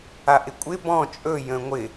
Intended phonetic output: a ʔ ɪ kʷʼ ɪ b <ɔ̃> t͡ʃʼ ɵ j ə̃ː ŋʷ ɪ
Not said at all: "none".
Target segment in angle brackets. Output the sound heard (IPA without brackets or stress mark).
ɔ̃